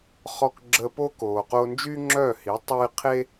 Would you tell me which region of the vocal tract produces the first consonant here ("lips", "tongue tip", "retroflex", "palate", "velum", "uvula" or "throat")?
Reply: uvula